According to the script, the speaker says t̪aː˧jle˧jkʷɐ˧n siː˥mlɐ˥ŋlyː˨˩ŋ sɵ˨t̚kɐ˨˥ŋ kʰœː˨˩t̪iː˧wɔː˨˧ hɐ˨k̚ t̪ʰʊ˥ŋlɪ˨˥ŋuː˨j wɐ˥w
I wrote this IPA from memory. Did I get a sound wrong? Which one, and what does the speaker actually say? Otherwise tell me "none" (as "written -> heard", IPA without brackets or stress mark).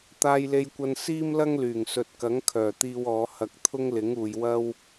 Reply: none